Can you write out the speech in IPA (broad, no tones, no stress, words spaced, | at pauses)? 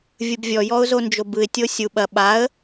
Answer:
vʲɯbvʲɔjɔʊ̯ zond͡ʒobɯɪ̯tʲo sʲu ɓɐ ɓaə̯